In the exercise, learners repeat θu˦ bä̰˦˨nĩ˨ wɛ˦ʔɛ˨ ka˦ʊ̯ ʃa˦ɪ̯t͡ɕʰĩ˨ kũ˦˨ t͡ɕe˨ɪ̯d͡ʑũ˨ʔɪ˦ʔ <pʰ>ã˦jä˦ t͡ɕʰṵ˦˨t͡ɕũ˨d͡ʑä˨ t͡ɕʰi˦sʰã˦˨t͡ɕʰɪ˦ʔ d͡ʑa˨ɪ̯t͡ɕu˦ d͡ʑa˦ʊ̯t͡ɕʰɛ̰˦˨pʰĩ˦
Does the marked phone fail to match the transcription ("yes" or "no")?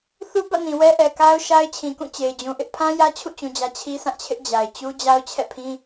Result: no